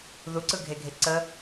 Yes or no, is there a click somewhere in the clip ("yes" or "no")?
yes